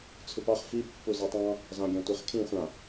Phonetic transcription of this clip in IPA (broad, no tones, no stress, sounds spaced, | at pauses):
t͡sʰ ʉ p ɑ χ f i pː u z ɜ tˤ ɑ̃ | z ɑ̃ ɡʲ ɑ̃ tʷ e χ kʰ ĩ χʷ ã